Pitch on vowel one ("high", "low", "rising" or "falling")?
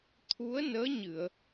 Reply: rising